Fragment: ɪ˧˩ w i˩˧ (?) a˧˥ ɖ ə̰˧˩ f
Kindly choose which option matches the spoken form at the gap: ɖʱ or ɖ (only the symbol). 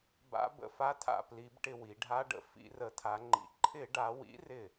ɖʱ